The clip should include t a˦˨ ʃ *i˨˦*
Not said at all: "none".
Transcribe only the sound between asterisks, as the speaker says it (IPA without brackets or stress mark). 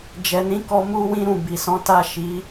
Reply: i˨˦